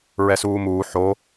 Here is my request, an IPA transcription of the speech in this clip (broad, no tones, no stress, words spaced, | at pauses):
ɹɛsuːmuː ħo